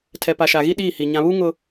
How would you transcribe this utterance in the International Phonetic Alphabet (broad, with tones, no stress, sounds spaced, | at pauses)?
tʰ ɛ˨ p a˨ ʃ a˨ ɣ i˦ ɗ iː˦˨ h i˨ ɲ ã˨ β u˦ ŋ ʊ˦